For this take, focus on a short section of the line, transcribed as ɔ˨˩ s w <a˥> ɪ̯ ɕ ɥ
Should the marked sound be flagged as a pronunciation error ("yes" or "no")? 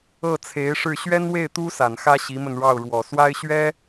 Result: no